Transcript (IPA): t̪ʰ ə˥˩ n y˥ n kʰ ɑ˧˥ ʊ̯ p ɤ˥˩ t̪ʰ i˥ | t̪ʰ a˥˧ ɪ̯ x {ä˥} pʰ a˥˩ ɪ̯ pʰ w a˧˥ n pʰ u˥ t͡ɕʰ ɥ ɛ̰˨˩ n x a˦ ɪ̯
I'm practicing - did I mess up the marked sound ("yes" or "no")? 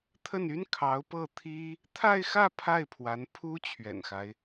yes